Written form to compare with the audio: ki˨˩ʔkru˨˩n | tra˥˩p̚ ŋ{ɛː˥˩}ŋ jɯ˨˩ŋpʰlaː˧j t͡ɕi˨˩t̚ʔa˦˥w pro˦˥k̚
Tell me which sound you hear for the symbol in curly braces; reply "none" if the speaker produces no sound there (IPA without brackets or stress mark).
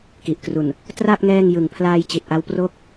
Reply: ɛː˥˩